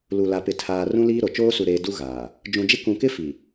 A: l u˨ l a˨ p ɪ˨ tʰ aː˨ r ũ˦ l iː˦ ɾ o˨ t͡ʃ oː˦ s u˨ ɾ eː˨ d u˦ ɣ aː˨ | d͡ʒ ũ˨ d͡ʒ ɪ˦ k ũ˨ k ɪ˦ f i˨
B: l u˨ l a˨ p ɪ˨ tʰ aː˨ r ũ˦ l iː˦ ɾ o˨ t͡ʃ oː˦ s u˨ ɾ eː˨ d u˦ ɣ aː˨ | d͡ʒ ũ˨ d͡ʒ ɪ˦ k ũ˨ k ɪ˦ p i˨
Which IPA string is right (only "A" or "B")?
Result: A